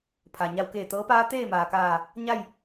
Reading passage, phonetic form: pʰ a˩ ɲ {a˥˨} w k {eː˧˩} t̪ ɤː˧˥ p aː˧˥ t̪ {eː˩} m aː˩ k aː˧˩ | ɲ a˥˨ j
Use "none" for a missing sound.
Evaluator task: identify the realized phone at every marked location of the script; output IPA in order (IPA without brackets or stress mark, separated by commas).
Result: a˧, eː˧˩, eː˥˨